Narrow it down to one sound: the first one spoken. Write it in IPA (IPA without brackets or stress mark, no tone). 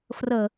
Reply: f